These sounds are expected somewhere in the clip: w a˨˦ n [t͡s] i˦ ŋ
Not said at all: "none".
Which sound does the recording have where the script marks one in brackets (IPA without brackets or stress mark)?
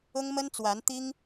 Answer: t̪